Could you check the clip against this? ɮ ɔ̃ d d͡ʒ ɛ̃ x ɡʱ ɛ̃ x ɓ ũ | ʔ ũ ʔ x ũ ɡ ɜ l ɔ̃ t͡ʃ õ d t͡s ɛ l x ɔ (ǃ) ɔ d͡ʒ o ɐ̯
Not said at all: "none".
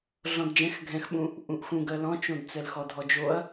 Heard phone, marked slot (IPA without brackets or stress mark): dʱ